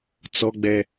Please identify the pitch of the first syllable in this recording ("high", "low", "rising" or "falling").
high